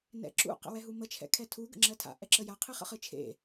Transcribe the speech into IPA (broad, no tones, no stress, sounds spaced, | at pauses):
n ɛ̰ ǁ ṵ q ə̰ w ɛ ɦ u m ə t͡ʃʰ ɛ̰ kʰ ɛ tʰ u ɡ ə̰ ŋ͡ǁ ɜ tʰ a̰ ʔ ɛ ǁ ə j a qʰ ɨ χ ə̰ χ ɨ t͡ʃʰ ḛ